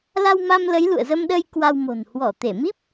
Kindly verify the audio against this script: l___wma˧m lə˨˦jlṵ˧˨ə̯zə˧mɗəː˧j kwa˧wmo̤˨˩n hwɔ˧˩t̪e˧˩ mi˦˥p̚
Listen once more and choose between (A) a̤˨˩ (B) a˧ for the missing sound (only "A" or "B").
B